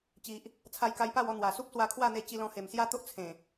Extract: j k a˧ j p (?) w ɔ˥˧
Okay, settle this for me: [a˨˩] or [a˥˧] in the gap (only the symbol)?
a˥˧